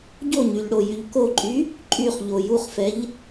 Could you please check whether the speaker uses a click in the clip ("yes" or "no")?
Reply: yes